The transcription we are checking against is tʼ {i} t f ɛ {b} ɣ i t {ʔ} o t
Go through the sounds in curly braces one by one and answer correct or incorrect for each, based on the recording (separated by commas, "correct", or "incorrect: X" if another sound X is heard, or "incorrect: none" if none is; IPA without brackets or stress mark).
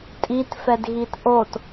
correct, incorrect: d, correct